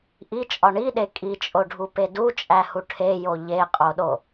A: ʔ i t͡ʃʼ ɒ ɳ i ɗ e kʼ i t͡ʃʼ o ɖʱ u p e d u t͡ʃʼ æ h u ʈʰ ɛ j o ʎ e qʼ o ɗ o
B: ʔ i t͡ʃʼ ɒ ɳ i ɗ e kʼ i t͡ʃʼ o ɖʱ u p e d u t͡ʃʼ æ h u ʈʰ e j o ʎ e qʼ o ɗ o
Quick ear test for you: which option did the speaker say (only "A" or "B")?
B